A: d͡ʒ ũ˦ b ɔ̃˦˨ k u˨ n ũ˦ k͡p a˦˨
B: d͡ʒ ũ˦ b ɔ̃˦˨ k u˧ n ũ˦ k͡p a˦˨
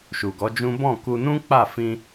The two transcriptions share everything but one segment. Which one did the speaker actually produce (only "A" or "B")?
B